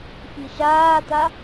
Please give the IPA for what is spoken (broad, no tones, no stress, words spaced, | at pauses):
fiʃaːt̪a